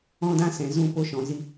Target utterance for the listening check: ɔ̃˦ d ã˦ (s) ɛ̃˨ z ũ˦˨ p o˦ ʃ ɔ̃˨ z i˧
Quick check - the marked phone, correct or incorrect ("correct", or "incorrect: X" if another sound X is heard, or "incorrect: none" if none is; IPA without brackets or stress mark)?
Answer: correct